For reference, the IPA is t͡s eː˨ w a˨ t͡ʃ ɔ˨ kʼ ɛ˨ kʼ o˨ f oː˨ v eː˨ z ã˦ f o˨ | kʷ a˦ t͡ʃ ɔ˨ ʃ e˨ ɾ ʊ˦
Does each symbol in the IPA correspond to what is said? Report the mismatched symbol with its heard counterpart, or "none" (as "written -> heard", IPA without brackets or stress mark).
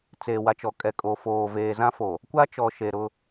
none